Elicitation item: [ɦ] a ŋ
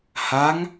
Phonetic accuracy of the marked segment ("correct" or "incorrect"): incorrect